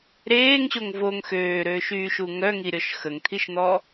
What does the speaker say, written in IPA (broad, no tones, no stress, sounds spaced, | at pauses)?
ɾ eː ŋ ɕ o ŋ v o ŋ x øː ɾ øː ʃ yː ʃ u ŋ œ ŋ i ɾʲ ɔ ʃ x ə ŋ t̪ʰ i ʃ n̪ ɔ